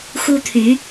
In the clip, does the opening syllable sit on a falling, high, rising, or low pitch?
high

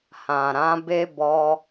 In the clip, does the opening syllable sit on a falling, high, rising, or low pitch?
low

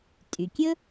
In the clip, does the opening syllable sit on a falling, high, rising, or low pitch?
low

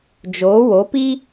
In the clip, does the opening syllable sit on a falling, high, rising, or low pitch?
rising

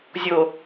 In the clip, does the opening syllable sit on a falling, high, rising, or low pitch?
low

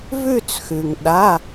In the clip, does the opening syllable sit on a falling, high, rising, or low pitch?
falling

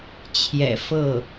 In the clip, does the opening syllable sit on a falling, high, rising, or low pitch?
low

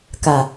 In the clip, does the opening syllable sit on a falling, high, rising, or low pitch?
low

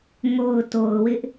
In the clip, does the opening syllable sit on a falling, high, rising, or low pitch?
low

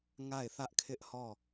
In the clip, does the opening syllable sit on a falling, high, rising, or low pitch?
falling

